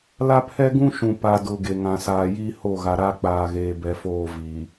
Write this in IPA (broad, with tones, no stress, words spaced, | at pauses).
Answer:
la˦pʰɛ˦ɡũ˦ʃũ˨ pa˨dʊ˨ ɡe˨ŋã˨saː˨ ji˦ho˦˨ɣa˨ɾa˦ k͡paː˨ɣeː˨bɛ˨foː˦˨ vi˨